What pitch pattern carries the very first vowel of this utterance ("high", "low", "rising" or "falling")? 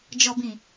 low